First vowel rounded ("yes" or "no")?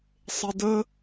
no